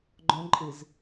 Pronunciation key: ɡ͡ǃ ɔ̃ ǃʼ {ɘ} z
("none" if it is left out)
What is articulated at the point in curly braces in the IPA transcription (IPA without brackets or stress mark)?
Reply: ɘ